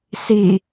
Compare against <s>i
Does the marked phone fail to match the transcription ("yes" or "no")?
no